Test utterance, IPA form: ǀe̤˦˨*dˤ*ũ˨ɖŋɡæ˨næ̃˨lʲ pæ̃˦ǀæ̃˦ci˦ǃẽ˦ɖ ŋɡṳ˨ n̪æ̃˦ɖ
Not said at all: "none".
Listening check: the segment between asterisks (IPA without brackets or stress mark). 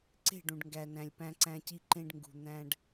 ɖ